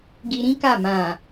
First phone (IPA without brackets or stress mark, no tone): ɡ